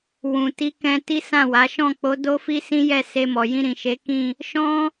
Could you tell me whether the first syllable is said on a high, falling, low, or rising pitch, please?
low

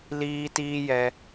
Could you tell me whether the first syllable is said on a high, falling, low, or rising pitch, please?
high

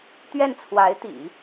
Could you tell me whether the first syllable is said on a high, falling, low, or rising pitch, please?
falling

